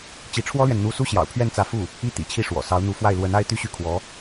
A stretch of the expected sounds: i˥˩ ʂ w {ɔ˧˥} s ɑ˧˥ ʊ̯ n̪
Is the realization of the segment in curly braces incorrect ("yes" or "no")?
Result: yes